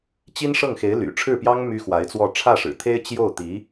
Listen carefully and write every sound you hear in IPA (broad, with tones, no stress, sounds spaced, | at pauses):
t͡ɕ i˥ n ʂ ɤ˥˩ ŋ x e˧˥ ɪ̯ l y̰˨˩ ʈ͡ʂʰ ɻ̩˥˩ p j ɑ˥ ŋ m y˥ x w a˧˥ ɪ̯ t͡s w ɔ˥˧ ʈ͡ʂʰ ä˥˩ ʂ ɻ̩˨˩ t̪ʰ e˥ ɪ̯ t͡ɕ j o˥˩ ʊ̯ t̪ i˧˥